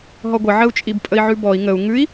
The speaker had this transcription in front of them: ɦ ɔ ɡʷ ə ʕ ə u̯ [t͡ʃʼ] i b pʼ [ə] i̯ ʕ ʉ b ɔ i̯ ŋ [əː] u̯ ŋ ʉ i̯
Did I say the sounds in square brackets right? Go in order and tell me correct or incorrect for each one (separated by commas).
correct, correct, incorrect